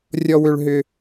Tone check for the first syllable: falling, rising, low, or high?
high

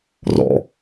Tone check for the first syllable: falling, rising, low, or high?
low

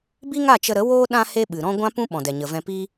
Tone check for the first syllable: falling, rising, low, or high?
high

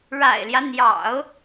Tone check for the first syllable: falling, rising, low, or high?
low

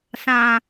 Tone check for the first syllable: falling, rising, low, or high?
low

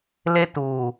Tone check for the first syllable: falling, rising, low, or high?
high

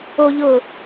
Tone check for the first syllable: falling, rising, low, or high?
high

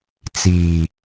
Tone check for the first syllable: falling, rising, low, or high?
low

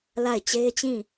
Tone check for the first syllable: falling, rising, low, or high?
falling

